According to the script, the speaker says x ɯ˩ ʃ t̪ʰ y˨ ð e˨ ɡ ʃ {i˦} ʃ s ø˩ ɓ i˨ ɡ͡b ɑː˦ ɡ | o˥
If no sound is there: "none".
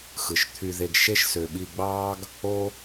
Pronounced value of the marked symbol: e˦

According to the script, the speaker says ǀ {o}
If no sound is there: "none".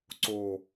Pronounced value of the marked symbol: o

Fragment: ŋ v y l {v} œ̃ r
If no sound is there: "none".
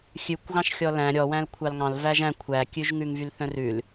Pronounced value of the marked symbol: θ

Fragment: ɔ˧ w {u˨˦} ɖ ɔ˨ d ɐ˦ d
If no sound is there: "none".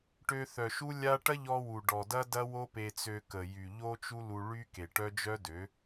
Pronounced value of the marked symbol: u˨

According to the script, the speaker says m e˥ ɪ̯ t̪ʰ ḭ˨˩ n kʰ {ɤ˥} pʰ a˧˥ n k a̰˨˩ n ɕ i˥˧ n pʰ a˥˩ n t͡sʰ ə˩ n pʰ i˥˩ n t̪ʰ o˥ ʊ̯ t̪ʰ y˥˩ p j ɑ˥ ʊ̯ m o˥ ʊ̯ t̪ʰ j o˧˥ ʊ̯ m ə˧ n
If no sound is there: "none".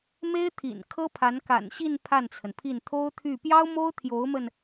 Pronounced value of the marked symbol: ɤ˥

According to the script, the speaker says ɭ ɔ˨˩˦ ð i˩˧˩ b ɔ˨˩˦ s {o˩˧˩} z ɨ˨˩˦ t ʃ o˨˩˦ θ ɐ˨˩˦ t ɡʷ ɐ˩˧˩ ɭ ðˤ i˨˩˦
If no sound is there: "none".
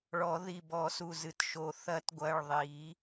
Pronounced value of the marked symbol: u˩˧˩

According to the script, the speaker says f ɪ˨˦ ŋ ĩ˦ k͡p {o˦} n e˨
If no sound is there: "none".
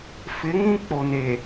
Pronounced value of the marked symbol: o˨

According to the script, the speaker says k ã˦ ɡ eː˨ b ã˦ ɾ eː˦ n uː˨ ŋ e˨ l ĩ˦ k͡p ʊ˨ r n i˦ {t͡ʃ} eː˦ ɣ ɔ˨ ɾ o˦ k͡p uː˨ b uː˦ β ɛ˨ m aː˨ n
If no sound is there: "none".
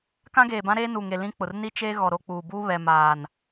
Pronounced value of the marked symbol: t͡ʃ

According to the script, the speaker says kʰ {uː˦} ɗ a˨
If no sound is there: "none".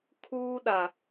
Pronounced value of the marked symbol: uː˦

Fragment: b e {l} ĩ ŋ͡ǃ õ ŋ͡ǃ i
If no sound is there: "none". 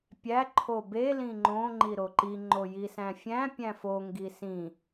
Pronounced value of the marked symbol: l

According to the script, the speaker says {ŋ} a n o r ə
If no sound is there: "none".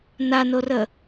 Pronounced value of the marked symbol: n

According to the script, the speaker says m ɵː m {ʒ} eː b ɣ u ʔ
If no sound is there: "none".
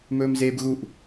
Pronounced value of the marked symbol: z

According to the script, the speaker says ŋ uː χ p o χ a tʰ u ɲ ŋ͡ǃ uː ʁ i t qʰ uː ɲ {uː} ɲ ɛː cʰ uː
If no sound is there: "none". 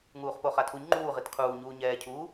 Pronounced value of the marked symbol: uː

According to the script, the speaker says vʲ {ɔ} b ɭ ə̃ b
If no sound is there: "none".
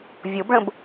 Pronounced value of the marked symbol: o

